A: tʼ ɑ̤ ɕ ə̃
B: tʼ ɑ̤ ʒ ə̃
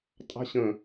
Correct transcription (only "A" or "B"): A